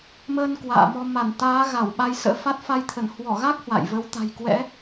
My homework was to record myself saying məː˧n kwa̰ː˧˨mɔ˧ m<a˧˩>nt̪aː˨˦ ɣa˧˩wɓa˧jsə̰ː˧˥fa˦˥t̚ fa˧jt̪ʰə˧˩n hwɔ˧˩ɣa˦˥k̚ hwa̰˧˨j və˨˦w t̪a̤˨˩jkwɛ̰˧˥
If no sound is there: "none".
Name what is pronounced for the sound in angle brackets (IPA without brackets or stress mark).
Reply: a˧˩